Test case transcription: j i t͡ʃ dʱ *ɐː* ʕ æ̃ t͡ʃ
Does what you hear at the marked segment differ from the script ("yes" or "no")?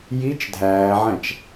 yes